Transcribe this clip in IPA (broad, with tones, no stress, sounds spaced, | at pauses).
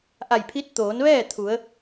ʔ a˧˩ j pʰ i˧˥ t̚ t̪ oː˩˧ n ʋ ɛː˥˨ t̪ʰ u˩˧ ə̯